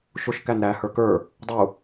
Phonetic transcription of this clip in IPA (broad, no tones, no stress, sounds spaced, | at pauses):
ʃ ʊ ʃ k æ n ɾ æ h ə˞ k ə˞ | dˤ u